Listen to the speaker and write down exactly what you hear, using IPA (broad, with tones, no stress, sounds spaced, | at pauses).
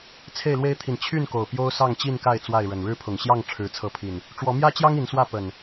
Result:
t͡sʰ e˥˨ ɪ̯ l w e˦ ɪ̯ t̪ʰ i˨ n t͡ɕʰ y˥˨ n k o˨˩ ʊ̯ p j o˦ ʊ̯ s ɑ˥˨ ŋ t͡ɕ i˥˨ n k a˥˨ ɪ̯ t͡s w a˥˨ ɪ̯ ɻ ə˨˩ n ɻ ɻ̩˦ pʰ ʊ˨˩ ŋ ɕ j ɑ˥˨ ŋ ʈ͡ʂʰ ɻ̩˨˦ t͡sʰ ɤ˨˦ pʰ i˨˩ n | ʈ͡ʂ w ɔ˨˦ m j ä˦ t͡ɕ j ɑ˦ ŋ i˨˦ n s w ä˥˨ p ə˨˩ n